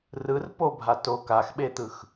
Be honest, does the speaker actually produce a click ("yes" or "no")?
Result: no